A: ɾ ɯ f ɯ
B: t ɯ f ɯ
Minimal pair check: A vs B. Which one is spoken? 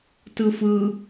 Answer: B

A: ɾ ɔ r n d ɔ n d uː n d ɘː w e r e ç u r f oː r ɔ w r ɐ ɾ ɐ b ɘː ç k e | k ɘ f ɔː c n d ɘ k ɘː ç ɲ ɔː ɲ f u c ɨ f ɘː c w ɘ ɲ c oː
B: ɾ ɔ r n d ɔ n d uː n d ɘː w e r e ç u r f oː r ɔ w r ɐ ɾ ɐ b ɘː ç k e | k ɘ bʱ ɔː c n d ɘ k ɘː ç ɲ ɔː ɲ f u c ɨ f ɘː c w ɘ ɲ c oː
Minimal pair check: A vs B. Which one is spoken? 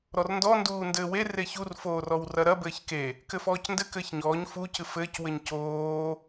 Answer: A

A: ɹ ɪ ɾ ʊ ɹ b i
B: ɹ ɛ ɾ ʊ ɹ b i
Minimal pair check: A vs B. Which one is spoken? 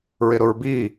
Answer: A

